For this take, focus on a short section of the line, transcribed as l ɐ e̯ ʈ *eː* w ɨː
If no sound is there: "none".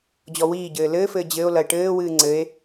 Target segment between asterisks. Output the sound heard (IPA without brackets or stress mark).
ɘː